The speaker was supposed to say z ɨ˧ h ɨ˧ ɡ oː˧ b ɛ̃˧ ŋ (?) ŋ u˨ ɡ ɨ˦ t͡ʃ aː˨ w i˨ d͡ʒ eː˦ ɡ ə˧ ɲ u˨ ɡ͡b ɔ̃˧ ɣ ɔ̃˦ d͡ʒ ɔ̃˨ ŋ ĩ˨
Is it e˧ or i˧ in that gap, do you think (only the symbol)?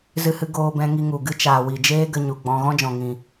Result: i˧